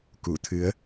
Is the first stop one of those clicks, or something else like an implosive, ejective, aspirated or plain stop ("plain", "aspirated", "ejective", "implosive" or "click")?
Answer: plain